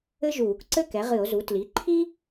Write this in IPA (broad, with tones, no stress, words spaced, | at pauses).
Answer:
ɘ˥ʒuː˧˩˧kǀɘ˥ kɛ˩˥ʁɨ˧˩˧o̯zu˩˥ tli˩˥ǃʰi˥